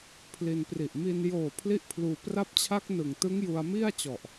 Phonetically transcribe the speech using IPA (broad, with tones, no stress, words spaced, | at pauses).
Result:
pʰli˧n pri˨˩ʔmi˧n joː˨˩ pʰli˥˩ʔpʰluː˧ pra˦˥p̚t͡ɕʰa˦˥k̚ nɯ˨˩ŋtɯ˦˥ŋ ju˧a̯mi˥˩a̯t͡ɕɔ˨˩ʔ